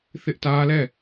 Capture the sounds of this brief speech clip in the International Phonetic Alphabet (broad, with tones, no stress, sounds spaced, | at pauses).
θ ɪ˦ ʔ t ä˦ l ɛ˦˨